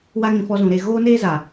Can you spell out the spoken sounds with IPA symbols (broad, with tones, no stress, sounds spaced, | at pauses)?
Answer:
w a˦ ŋ ĩ˧ f ɔ˧ z ũ˨ ɾ e˦˨ ɣ oː˦ n eː˦ z a˨